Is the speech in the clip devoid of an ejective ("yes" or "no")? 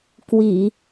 yes